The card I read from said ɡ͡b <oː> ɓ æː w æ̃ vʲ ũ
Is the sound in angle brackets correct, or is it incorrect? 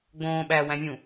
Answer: incorrect